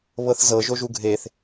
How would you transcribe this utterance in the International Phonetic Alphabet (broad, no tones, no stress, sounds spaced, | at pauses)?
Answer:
β ɤ θ z ɤ ʒ o ʒ u ɡʱ e θ